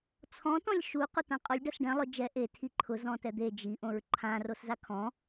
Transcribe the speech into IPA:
t͡sʰɔ̃ tɔ̃lʲʃu qʊt̪ãqʼɔlʲ ɖasɖɛ̃ lˠʊ d͡ʒɛ ʔe tʰiǃʰʊ zɔ̃tɛd̪e d͡ʒi ʔõɹǃʰã roszakʰɔ̃

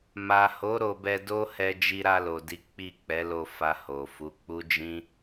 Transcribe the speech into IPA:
ma˨ho˨˦ ɾo˧bɛ˧do˦ hɛ˧d͡ʒi˧ɾa˧lo˨ di˨˦k͡pi˦˨k͡pɛ˨˦lo˧ fa˧ho˨fu˨˦ k͡pu˦d͡ʒĩ˦

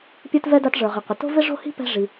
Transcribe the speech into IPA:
pʲə˞˥tvɛ˥ da˥tʐə˞˩ʁɪ˩qʷɪ˩ to̤˥vɪ˥ʐo̤˥hi̤˥ pɛ̤˥ʐi˩

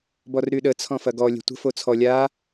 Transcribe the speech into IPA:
bɔrɾyɗə t͡sʰɔ̃fɐɡɔ lʲɛ̤tʷə̤ fot͡sʰɔ lʲa

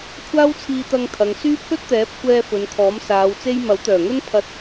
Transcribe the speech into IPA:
kʷʰaː˥wt͡sʰiː˧t̪ɐ˧ŋ t̪ʰɐ˨ŋ syː˥ pʰɵ˥t̚t̪ɛː˨˥p̚ kʷɛː˧ fɵ˨˧nkʰɔː˨˥msaː˨˧wt͡se˥j mɐ˨˥wt̪œː˨˩ŋɵ˥n pʰɐ˧t̚

